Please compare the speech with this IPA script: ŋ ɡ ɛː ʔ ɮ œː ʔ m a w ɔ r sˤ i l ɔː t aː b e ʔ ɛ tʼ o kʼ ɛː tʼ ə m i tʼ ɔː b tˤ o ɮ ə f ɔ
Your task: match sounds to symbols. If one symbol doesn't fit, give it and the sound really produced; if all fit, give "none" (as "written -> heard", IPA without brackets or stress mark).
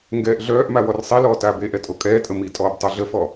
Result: none